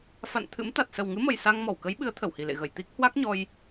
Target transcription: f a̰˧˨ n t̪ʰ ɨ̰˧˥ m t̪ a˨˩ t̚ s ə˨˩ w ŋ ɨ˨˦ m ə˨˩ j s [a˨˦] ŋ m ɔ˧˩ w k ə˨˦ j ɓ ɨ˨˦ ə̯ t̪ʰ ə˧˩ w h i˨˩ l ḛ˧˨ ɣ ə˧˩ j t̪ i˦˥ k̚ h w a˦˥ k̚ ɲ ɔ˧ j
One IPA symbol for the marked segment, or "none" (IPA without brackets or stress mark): a˧